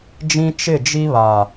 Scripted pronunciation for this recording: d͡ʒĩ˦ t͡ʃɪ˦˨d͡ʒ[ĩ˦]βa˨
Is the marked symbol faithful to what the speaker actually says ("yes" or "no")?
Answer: no